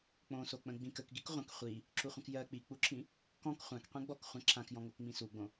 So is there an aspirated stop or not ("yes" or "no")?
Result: yes